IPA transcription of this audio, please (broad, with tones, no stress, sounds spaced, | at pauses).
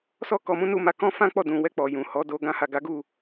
s ɔ˦ k ɔ˧ m ũ˦ n u˦ m a˧ k ɔ̃˦ f ã˦ k͡p ɔ˦˨ d ũ˨ w ɛ˧ k͡p ɔ˨ j ũ˨ h ɔ˨˦ d o˧ ɡ ã˦ h a˦˨ ɡ a˨˦ ɡ u˦˨